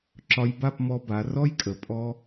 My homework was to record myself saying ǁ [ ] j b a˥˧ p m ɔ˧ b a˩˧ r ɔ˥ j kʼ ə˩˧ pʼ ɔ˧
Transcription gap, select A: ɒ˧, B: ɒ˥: A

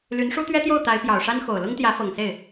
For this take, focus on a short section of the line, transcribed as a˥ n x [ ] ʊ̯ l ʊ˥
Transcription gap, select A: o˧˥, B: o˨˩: B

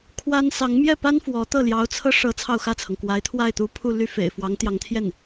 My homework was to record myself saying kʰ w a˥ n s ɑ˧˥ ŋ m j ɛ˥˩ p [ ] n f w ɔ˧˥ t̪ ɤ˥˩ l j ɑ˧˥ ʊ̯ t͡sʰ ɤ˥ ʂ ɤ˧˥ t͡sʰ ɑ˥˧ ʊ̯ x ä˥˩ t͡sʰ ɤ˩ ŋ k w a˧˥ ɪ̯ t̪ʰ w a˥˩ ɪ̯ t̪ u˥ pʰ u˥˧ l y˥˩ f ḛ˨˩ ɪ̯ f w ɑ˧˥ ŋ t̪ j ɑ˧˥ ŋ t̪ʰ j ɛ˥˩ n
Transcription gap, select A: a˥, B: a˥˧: A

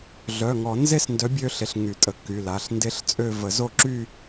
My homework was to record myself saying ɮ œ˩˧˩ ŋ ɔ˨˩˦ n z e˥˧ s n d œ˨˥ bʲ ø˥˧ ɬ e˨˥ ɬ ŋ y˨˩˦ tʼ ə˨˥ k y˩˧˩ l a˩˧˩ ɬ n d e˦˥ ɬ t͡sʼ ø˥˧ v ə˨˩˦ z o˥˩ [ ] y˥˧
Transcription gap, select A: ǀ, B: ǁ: B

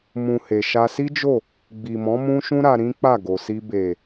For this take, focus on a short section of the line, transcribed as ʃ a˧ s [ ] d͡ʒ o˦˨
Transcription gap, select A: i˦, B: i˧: A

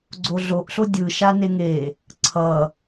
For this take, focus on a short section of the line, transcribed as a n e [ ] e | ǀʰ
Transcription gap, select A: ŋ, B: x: A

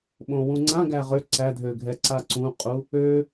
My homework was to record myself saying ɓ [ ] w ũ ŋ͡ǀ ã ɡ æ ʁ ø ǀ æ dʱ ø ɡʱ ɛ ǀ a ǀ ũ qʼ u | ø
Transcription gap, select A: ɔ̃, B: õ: B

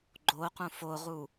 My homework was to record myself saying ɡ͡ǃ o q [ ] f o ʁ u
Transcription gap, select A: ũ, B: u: A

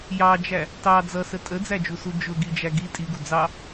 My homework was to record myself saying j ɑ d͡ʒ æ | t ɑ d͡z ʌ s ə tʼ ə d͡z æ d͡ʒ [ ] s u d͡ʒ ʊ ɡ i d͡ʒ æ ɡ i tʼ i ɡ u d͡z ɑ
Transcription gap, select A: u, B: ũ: A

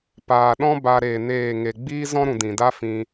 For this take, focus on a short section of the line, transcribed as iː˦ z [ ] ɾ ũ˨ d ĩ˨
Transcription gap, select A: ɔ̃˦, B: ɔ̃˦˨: A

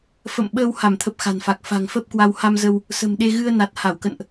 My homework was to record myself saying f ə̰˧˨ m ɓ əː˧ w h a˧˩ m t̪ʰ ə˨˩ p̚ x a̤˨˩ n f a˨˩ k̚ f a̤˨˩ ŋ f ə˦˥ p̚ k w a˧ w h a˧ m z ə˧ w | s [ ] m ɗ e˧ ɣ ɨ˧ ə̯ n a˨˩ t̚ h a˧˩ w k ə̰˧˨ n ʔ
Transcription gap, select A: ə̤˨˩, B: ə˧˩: A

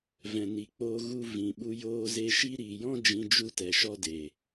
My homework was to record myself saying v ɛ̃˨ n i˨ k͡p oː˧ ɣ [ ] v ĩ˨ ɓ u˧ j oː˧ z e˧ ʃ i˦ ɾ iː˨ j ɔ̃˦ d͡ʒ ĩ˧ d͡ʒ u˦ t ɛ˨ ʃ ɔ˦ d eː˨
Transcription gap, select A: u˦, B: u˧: B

